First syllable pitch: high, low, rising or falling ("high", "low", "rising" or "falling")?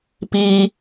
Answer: high